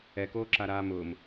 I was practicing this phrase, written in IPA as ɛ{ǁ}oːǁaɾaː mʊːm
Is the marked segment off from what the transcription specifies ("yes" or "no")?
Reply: yes